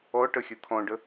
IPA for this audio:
ɔ ʈ ə xʲ ɯ t̪ʰ ɔ̃ ɖ ə

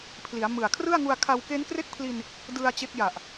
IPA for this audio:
pʰ l i˩˦ a̯ m ɯ˨˩ a̯ kʰ r ɯ˥˩ a̯ ŋ u˧ a̯ kʰ a˧ w k e˦˥ n k r e˥˩ k̚ pʰ l i˧ n | d ɯ˧ a̯ t͡ɕ e˦˥ k̚ j a˨˩ ʔ

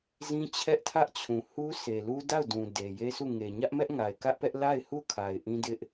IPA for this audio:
z ĩ˦ t͡ɕʰ ɛ˦ ʔ tʰ ä˦ ʔ t͡ɕʰ ũ˨ h u˦ sʰ e˨ l u˦ d a˦˨ ʊ̯ d ũ˨ d e˨ j e˦ s u˦˨ ŋ e˨ ɲ ä˦ ʔ m ɛ˦ ʔ ŋ a˨ ɪ̯ k ä˦ ʔ p ɛ˦ ʔ l a˦˨ ɪ̯ h u˦˨ kʰ a˨ ɪ̯ ʔ ĩ˦ d ɪ˦ ʔ

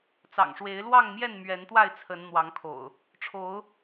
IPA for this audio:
t͡s ɑ̰˨˩ ŋ ʂ w e˨˦ ɪ̯ l w ɑ˥˨ ŋ m j ɛ˥˨ n m ɥ ɛ˨˦ n t̪ w a˥˨ ɪ̯ t͡sʰ ə˨˦ n n̪ w ɑ˨˦ ŋ kʰ o̰˨˩ ʊ̯ | ʈ͡ʂʰ o˨˦ ʊ̯

